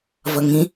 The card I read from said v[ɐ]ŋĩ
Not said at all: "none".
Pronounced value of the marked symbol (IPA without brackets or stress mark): ɐ